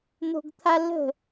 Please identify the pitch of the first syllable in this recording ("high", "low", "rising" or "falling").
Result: high